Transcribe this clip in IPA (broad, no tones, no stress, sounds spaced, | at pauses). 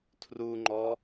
tʰ r u ŋ͡ǃ ɔ